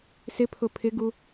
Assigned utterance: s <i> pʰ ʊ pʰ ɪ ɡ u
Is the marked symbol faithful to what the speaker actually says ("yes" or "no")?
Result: no